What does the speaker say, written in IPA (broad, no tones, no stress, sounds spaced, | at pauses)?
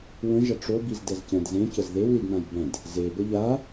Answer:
w ə̃ ʒ ɐ ʈ͡ʂ o b i z d ɛ z c ɛ̃ d z ẽ c ə z ð e w l i d n ã j b ɛ̃ d | z e b ə ʎ a